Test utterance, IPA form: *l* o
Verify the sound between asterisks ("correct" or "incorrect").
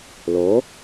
correct